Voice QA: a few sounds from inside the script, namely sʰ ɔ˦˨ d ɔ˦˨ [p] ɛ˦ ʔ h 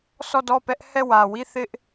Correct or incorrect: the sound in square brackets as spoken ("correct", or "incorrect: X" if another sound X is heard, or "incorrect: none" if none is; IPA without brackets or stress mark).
correct